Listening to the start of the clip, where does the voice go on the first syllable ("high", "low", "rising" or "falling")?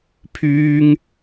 high